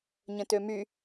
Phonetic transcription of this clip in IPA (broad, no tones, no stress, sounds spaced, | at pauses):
ɲ ə̃ t ø m y